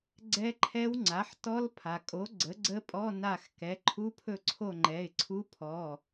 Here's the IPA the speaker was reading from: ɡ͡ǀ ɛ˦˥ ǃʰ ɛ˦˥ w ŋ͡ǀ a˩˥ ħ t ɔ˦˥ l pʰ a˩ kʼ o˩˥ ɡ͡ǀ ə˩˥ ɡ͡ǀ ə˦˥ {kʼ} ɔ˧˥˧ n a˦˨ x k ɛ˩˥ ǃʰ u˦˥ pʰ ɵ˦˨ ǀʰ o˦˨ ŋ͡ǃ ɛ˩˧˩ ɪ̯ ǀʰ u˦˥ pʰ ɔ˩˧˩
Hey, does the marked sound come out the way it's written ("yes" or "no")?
no